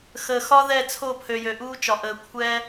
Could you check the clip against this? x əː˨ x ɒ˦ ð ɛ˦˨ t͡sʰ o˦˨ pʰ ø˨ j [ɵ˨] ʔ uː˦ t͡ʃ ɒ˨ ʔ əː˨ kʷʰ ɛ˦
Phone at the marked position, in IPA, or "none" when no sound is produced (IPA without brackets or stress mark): ø˨